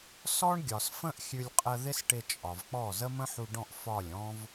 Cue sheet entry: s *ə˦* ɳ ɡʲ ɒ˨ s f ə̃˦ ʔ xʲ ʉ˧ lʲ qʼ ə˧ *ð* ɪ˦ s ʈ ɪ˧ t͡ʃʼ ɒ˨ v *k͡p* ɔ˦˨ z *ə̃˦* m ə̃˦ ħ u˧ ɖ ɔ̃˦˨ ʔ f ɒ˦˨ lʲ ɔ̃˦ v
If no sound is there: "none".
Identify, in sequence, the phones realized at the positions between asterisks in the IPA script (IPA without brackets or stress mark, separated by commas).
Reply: ɔ˦, ð, k͡p, ə˦